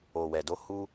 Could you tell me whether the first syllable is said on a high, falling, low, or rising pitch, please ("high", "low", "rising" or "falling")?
low